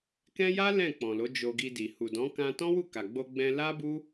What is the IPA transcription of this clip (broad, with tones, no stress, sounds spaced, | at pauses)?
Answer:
k ɛ̃˦ j a˦ l ɛ̃˦˨ k͡p ɔ̃˨ l o˨˦ d͡ʒ o˧ ɡ i˧ d i˨ h u˨ d ɔ̃˨˦ k ã˧ t ɔ̃˦ w u˦˨ k a˨ ɡ͡b o˧ ɡ͡b ɛ̃˧ l a˦ b u˦